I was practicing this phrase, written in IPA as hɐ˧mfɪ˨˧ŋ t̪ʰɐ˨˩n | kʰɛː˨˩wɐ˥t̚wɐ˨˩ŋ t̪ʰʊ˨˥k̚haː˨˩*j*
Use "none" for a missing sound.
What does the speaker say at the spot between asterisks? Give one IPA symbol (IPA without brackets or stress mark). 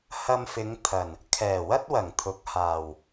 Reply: w